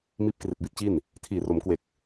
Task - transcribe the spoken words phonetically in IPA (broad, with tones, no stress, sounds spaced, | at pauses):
m iː˦˥ p̚ k r i˨˩ t̚ b i˦˥ t̚ t͡ɕ i˥˩ n | tʰ iː˨˩ r o˩˦ m k w e˨˩ k̚